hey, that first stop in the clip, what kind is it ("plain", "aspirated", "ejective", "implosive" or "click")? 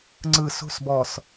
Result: click